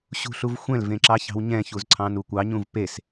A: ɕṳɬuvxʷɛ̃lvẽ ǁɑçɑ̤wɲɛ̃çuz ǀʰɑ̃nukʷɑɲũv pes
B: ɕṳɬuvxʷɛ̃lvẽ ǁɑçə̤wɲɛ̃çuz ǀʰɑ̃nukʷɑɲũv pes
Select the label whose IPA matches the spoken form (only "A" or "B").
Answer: A